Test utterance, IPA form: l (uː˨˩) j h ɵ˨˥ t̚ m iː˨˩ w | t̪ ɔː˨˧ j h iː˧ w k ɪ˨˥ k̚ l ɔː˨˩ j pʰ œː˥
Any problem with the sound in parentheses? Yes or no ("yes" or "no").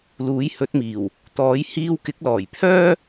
yes